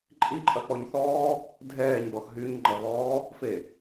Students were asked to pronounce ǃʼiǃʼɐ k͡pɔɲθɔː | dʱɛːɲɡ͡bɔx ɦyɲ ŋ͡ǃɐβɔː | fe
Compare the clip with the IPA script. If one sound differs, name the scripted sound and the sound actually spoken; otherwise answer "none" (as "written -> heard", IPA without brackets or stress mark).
none